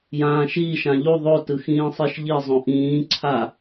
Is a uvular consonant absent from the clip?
yes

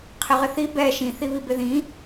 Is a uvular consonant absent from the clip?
no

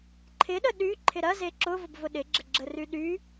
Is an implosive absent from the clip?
no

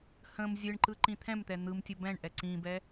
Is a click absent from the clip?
no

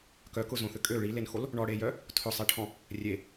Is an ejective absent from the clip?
no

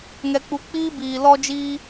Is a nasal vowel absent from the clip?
yes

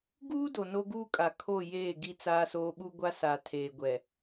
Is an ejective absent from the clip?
no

